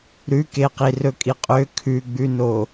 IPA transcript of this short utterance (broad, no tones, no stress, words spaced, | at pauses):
ɾʉkeqi rɵkʼiqʼø kʰʉɡ͡bʉno